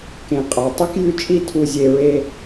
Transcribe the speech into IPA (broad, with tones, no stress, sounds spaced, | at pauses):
k ẽ˨ qʼ a˨ tˤ ʉ˦ k j ʉ˦ t͡ʃʼ i˦˨ tʰ u˨ zʲ e˨ ɹ e˦